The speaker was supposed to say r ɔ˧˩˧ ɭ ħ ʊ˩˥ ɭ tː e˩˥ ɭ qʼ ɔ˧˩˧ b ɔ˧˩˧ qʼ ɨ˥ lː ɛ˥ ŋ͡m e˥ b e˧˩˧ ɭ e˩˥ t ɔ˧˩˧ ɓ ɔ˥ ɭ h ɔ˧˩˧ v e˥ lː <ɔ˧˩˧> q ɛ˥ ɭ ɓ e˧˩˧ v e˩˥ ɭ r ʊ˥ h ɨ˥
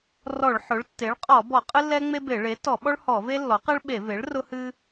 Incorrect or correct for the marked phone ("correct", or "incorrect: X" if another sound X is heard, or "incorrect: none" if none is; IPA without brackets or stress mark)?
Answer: incorrect: ɔ˩˥